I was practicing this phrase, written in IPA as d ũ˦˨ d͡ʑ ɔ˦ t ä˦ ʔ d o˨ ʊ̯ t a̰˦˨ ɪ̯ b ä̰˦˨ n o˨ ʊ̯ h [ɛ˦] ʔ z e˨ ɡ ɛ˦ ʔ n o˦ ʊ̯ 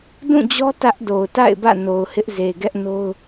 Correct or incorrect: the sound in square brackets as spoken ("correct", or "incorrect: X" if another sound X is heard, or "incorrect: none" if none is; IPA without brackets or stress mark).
incorrect: ɪ˦